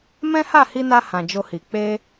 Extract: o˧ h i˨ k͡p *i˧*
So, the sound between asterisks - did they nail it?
no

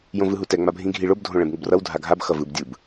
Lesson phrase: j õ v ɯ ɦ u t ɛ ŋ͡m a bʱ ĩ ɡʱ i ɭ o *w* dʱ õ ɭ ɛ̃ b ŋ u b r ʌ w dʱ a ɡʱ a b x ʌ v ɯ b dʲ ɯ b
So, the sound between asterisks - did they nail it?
no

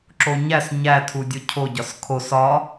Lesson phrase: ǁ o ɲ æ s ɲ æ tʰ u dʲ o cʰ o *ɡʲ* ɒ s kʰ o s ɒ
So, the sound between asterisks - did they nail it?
no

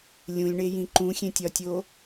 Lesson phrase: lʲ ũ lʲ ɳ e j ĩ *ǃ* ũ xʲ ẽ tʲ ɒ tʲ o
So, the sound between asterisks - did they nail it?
yes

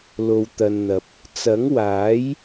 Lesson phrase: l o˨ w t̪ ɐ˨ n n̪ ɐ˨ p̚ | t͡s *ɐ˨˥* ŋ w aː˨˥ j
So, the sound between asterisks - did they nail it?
yes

